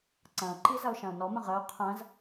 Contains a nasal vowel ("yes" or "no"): yes